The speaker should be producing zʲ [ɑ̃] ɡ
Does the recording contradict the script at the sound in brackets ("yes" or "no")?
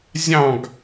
no